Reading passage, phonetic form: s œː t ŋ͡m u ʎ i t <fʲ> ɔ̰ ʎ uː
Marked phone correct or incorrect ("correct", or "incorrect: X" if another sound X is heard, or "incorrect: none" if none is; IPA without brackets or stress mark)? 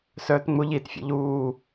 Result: correct